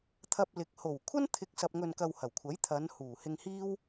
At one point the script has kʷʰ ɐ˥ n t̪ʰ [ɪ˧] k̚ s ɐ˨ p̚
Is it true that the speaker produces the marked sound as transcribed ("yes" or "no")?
yes